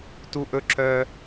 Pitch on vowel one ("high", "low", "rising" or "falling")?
high